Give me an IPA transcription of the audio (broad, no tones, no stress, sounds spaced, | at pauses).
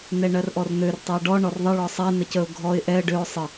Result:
n ɛ ɳ ɜ r ʔ ɔ r n̪ ø r tˤ ɛ ə̯ ɖ ɔ ɳ ɔ r ðˤ ə ɭ ɔ sˤ ɛ n ə c ə ʊ̯ ɡʱ ɔ ɪ̯ ʔ ɛ ə̯ ɖ ø ʊ̯ sˤ ə